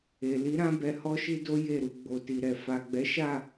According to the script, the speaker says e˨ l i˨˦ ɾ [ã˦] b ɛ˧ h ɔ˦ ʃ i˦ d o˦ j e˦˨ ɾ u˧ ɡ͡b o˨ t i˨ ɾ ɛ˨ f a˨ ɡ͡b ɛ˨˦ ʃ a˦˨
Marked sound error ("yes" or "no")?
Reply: no